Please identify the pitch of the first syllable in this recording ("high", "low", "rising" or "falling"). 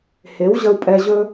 rising